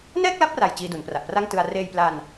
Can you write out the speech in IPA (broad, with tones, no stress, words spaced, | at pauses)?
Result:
nɛː˥˩k̚la˦˥p̚ra˨˩j t͡ɕiː˧du˩˦npra˨˩ʔpra˥˩ŋ tɯ˧a̯ reː˧jpla˧n